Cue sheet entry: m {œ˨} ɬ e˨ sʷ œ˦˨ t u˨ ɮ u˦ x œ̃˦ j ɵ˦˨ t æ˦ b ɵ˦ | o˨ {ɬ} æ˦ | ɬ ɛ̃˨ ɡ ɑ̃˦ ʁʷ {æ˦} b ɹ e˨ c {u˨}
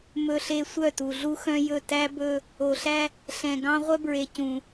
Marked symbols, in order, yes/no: no, yes, no, no

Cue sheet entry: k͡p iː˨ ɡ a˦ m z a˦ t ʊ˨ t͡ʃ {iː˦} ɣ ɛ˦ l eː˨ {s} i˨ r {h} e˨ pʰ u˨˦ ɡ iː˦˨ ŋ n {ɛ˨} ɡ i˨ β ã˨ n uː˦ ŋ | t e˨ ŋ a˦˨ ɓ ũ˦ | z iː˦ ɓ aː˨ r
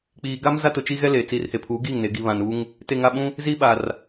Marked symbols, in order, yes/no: no, no, yes, no

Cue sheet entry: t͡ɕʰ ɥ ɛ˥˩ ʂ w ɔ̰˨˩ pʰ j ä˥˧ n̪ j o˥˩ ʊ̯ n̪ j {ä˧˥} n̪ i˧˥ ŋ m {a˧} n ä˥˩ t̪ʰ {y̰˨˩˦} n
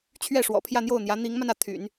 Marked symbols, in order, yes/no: yes, yes, yes

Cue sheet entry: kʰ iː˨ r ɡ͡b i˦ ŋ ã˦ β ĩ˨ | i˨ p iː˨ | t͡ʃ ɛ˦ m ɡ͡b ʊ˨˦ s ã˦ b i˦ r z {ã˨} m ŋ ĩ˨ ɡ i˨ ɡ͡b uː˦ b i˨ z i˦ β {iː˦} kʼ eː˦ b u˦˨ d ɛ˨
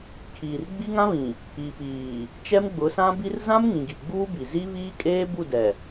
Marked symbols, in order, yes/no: no, yes

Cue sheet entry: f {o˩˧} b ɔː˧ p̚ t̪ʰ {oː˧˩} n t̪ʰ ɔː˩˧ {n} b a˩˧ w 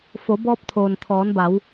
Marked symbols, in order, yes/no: yes, no, yes

